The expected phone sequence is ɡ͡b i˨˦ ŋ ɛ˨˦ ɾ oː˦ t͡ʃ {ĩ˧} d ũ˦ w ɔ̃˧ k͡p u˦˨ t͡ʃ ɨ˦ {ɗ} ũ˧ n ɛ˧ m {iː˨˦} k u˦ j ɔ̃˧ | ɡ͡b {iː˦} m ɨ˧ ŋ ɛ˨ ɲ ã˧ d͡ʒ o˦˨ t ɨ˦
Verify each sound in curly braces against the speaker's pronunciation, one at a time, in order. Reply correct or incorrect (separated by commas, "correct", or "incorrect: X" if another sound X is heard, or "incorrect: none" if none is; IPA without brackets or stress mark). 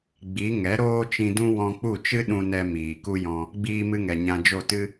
correct, correct, incorrect: iː˨, incorrect: iː˧